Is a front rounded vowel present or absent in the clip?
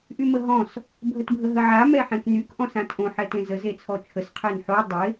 present